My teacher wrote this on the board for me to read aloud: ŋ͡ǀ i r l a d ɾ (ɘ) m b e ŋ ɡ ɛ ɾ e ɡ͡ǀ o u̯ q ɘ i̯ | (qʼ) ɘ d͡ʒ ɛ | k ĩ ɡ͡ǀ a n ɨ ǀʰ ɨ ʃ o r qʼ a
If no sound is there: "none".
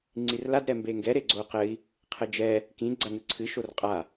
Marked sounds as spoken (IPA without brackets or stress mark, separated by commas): ɛ, qʰ